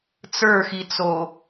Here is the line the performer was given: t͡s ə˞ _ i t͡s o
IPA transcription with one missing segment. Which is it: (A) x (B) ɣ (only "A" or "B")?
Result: A